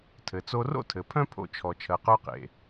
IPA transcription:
tʰ ɘ˩ t͡s o˧ r o̰˥ tʰ ɘ˩ pʰ œ̃˥ pʰ o̰˧ t͡ʃʰ ɔ˩ t͡ʃʰ ɜ˩ q œ˧ q ḛ˩

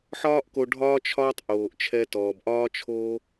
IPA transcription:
ħ ɒː˦ ʔ k o˧ ɖʱ ɒː˦ t͡ʃʰ ɒː˦ tˤ ʔ oː˨ ʔ t͡ʃʰ ɛ˧ t ɔː˨ b ʔ ɒː˦ t͡ʃʰ oː˦

